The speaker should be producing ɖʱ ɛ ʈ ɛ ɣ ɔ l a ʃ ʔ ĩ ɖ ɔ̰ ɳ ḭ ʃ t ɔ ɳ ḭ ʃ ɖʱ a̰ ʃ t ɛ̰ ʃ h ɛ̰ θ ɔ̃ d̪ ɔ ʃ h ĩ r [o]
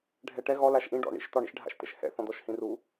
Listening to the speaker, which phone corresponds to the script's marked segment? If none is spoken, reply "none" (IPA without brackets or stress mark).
u